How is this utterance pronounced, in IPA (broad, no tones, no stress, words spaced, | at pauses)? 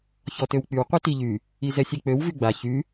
çɔtøwk͡pyw qʷitiʎy | izɛsʲek͡pøw vyɡ͡ba çy